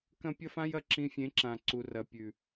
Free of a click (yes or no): no